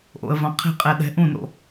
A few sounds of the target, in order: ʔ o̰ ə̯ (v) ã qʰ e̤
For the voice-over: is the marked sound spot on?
yes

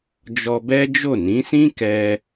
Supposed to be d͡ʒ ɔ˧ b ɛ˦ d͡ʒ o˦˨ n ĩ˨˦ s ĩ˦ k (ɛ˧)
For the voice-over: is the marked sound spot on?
yes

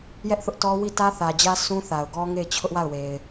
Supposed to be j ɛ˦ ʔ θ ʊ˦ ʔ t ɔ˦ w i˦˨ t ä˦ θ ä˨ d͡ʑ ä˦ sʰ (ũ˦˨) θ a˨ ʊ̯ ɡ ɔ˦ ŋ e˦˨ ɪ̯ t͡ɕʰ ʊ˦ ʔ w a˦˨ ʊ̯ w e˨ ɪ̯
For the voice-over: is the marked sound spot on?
no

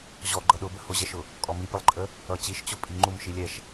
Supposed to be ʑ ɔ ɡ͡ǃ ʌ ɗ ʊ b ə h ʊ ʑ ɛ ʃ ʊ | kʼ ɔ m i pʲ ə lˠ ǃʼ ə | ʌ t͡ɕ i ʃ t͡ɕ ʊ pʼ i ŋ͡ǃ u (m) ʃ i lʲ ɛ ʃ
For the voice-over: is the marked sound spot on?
yes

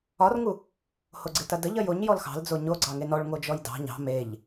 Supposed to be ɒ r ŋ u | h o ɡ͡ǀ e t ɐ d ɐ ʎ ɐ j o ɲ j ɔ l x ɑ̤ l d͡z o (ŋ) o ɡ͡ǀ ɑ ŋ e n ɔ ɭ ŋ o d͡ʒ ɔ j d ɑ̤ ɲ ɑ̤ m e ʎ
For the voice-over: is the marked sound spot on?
no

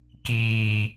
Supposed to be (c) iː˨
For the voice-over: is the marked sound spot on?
no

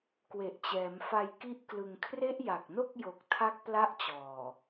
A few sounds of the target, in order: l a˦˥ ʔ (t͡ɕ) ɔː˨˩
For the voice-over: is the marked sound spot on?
yes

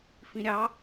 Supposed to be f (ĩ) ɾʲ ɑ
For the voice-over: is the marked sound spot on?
yes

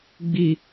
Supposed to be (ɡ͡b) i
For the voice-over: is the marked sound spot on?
yes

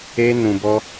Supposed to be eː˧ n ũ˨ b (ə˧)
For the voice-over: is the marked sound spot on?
no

